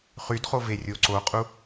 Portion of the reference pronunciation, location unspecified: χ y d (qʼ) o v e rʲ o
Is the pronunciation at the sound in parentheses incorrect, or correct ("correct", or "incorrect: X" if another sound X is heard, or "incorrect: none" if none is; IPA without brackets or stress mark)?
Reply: incorrect: χ